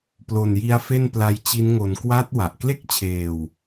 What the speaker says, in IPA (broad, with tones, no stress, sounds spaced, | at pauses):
p l o˨˩ n j i˦˥ a̯ f e˥˩ n p l a˦˥ j t͡ɕ i˦˥ n ŋ o˧ n k w a˦˥ t̚ w a˨˩ ʔ k l e˥˩ k̚ t͡ɕʰ eː˧ w